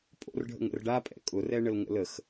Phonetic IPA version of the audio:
pʼo̰rɖʱə̰ŋ ə̰rɖapʼɛ̰ kʼʊrɛɳəl ŋə̰ləx

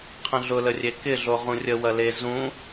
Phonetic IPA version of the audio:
qʰə̃ɮʊlərʲe kɪɮo ʁũrʲə wɐle zũ

